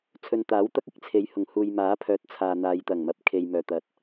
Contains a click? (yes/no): no